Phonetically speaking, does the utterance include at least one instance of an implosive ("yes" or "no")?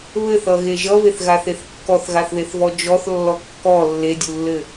no